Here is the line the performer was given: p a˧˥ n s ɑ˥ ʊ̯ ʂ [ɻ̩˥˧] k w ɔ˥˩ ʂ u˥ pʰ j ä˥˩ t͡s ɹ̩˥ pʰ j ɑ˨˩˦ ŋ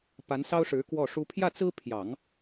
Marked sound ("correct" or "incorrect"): incorrect